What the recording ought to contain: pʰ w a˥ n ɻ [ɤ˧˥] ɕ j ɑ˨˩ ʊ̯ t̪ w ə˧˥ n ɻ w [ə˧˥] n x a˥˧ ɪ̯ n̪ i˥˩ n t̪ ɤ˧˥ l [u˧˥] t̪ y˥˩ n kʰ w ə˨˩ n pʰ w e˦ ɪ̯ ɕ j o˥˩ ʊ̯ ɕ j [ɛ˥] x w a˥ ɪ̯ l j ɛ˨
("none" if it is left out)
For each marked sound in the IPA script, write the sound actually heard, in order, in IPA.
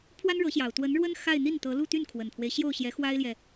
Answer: ɤ˧˥, ə˥, u˥˧, ɛ˧˥

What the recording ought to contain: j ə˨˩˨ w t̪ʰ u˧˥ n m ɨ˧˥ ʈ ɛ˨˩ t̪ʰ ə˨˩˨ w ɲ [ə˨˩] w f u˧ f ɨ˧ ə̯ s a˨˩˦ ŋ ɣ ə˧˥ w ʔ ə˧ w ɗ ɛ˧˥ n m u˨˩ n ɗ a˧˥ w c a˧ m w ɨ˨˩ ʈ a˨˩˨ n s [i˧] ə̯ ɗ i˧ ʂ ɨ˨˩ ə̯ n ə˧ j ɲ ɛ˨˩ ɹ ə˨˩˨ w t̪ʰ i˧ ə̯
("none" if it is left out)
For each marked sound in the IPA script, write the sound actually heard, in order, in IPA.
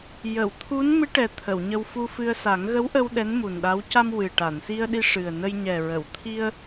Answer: ə˧, i˧

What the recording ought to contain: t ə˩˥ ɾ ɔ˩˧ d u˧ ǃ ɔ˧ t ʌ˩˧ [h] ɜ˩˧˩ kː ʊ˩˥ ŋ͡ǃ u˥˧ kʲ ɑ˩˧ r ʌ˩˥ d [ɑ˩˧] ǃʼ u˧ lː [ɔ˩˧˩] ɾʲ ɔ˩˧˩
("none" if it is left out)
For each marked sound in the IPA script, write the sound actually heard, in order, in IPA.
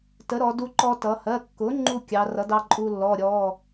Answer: h, ɑ˧, ɔ˩˧˩

